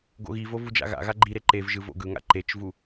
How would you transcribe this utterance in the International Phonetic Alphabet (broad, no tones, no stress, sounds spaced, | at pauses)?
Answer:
ɡ o̰ ɣ i v o v u d͡ʒ a̰ ɣ a̰ ɣ a ɡ͡ǃ i ɾ e ǃ e v ʒ ɯ v o̰ ɡ ɯ ŋ a̰ ǃ e t͡ʃ v u